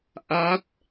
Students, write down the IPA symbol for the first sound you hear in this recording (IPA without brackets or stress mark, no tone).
ʔ